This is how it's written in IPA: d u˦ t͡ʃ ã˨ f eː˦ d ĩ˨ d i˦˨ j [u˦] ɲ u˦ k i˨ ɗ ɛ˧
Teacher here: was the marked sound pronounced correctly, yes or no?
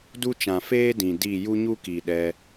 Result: yes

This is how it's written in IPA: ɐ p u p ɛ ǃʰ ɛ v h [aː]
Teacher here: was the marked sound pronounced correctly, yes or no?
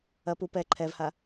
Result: no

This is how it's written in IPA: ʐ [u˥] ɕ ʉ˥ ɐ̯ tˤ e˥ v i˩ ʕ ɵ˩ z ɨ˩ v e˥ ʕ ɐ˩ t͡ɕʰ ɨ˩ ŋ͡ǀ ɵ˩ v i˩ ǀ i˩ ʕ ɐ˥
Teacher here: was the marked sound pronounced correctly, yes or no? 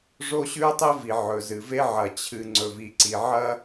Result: no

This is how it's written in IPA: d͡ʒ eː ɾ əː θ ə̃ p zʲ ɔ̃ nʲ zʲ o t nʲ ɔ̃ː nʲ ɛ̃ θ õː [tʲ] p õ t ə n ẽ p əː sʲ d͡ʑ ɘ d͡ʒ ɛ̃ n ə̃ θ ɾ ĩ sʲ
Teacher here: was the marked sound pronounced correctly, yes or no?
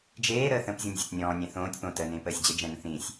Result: yes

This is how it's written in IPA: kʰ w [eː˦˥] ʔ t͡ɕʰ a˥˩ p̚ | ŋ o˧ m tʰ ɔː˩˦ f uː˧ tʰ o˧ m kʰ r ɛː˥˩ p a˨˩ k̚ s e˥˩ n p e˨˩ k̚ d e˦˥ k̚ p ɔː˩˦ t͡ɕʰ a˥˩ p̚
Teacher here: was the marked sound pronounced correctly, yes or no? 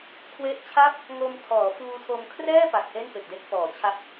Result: no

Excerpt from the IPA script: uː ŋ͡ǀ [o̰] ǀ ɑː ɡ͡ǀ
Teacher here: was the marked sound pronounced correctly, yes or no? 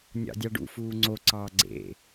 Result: no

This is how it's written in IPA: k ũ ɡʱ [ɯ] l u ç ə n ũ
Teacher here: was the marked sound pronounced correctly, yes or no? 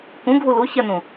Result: no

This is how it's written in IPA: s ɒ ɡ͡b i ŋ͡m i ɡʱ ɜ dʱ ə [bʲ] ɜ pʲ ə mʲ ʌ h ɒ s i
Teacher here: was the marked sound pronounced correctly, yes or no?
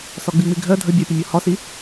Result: yes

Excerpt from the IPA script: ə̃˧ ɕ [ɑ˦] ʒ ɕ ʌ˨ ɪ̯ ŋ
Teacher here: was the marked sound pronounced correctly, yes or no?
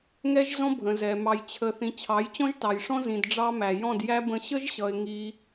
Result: no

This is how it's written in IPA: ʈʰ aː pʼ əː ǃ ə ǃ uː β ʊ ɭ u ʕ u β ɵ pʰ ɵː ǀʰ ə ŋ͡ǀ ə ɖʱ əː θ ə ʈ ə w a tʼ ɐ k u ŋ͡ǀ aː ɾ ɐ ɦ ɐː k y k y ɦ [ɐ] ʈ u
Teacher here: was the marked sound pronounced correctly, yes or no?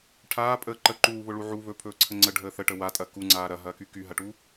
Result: yes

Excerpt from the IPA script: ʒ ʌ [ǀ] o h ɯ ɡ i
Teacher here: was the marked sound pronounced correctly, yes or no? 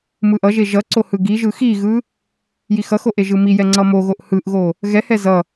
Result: yes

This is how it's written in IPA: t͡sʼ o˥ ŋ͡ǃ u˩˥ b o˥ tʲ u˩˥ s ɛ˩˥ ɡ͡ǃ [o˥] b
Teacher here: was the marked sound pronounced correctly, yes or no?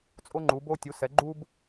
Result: no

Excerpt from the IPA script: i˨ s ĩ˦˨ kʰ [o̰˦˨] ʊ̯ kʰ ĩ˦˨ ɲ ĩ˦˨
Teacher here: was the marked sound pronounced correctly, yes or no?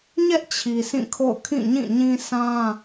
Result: yes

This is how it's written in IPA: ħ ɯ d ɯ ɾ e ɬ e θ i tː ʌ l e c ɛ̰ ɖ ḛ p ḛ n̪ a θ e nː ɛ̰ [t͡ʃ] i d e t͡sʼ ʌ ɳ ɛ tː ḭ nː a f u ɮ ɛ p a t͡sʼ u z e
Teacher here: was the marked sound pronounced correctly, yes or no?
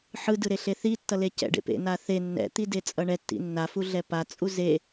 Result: no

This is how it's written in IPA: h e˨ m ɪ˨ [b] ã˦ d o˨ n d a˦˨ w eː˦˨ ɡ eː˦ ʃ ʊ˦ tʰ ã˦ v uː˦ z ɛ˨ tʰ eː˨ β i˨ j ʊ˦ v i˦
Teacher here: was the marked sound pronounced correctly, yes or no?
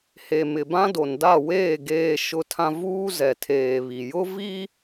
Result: yes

